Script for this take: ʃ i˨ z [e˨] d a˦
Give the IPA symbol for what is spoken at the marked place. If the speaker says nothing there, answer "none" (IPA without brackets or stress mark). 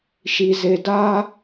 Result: e˨